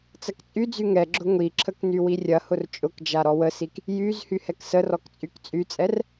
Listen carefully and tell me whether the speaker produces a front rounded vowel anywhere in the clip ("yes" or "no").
yes